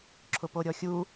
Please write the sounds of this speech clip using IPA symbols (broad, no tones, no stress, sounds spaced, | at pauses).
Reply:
ǁʰ ʊ p o ɾʲ ɔ xʲ u